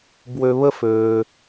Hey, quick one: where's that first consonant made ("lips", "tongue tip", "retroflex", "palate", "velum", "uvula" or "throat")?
lips